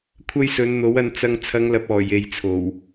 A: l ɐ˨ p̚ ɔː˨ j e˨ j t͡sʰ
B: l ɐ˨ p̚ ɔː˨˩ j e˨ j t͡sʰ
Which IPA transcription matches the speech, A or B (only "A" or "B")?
B